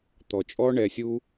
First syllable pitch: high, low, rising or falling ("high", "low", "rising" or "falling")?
low